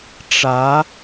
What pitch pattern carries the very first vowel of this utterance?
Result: rising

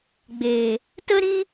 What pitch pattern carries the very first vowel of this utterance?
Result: low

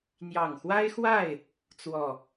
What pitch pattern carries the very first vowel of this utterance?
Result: low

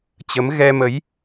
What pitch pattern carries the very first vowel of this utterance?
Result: rising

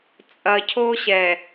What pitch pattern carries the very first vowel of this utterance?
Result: low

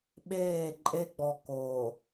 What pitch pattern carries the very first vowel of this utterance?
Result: falling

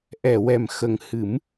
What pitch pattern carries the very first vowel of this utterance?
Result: low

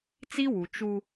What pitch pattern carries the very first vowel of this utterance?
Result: high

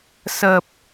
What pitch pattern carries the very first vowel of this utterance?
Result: low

